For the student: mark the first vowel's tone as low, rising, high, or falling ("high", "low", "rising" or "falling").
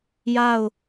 falling